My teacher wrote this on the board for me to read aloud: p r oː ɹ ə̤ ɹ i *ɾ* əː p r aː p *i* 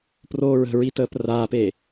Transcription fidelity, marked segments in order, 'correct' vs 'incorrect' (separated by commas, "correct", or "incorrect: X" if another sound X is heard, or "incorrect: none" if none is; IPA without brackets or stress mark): incorrect: t, incorrect: e